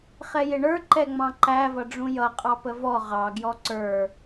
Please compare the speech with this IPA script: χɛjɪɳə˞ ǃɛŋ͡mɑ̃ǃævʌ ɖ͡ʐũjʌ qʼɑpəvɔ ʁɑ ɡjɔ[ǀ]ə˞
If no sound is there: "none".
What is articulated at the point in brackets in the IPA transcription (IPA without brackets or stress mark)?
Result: ǀ